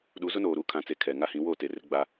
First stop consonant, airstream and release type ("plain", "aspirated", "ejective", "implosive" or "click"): implosive